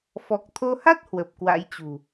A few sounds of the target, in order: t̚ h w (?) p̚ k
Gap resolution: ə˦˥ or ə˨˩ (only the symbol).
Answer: ə˨˩